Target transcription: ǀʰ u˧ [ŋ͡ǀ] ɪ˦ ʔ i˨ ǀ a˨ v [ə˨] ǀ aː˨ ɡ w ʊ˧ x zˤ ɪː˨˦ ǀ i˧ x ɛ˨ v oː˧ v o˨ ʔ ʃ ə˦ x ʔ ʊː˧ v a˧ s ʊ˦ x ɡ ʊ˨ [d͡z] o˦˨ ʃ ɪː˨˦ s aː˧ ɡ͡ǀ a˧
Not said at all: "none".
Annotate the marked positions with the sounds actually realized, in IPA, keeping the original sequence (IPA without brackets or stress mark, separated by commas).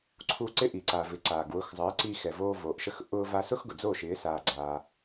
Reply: ǀ, ɪ˨, d͡z